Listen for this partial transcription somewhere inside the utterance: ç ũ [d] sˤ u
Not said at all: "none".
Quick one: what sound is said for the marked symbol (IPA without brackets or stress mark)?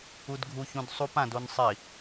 d